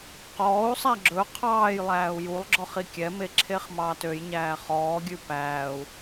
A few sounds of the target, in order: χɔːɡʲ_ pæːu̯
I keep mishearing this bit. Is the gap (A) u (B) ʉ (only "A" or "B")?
B